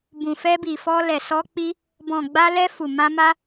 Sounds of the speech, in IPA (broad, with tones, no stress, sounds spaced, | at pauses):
b ũ˨ f ɛ˧ b i˨ f ɔ˧ l ɛ˨ s ɔ˧ k͡p i˧ | b ɔ̃˨ ɡ͡b a˧ l ɛ˧ f u˨ m ã˧ m a˧